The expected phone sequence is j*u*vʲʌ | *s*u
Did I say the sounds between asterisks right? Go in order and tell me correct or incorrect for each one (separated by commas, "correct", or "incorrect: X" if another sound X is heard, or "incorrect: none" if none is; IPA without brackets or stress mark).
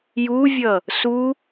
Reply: correct, correct